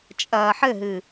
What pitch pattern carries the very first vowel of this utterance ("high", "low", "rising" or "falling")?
low